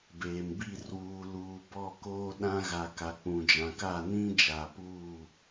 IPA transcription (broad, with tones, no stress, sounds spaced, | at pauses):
b eː˨ m b i˦˨ r w uː˨ l uː˨ b ɔ˦˨ k oː˦ ɗ ã˦ ɣ a˨ k a˨ k͡p ũ˨ d͡ʒ ã˨ k a˦˨ n ĩ˦ d͡ʒ aː˨ p uː˦˨